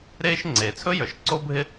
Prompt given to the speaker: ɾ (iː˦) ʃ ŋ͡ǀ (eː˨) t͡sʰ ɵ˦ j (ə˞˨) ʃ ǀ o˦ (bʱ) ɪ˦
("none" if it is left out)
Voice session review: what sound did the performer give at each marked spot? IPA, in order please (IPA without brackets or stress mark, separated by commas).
eː˦, eː˨, ə˞˨, bʱ